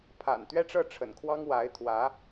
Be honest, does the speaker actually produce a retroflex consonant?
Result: yes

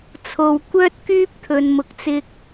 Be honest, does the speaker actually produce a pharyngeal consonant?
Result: no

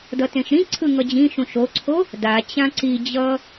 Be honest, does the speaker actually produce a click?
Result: yes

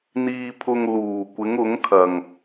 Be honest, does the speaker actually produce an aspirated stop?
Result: yes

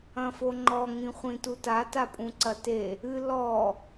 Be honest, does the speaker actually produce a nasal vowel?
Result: yes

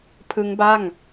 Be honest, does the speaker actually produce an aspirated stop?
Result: yes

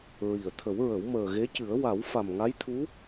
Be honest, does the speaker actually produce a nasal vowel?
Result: no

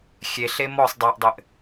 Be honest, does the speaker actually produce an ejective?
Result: no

